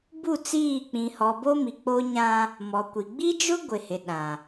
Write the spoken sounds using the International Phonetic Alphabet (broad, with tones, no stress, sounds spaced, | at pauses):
b u˦˨ t͡s iː˦˨ k͡p ĩ˨ h ɔ˨ b o˦ m i˨ k͡p o˦ ɲ ã˦ | m ɔ˨ kʷ i˨ ɡ͡b i˦ d͡ʒ ʊ˦ ɡʷ ɪ˨ h ɪ˨ ɗ ã˨